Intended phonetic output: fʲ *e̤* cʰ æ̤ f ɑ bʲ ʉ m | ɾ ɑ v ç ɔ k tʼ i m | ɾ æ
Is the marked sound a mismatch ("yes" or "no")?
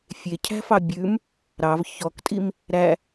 yes